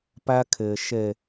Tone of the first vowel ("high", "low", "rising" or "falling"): high